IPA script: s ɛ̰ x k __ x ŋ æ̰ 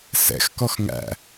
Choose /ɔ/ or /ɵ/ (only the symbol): ɔ